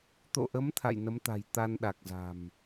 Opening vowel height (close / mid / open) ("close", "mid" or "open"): mid